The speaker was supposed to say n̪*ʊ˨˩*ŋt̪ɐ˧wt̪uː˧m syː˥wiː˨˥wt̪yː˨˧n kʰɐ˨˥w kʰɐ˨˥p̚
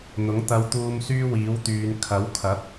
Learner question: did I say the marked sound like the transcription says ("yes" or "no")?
no